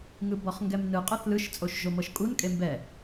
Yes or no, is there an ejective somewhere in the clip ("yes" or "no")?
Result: yes